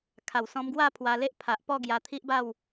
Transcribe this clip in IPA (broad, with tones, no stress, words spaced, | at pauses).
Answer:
kʰa˨˩wsɔ̃˧mɡwa˥˧ pʰwa˧le˦ʔpʰa˨ʔpɔ˥˧ ɡja˧t̪ʰi˦ʔba˥˧w